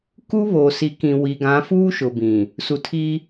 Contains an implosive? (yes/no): no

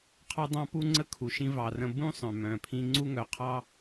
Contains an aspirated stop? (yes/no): yes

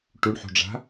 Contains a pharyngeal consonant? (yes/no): yes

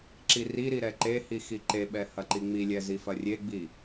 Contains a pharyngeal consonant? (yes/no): no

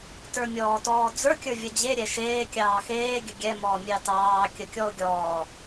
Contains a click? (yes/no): no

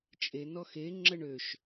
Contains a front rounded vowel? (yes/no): yes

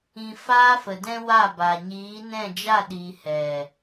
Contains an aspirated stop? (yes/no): no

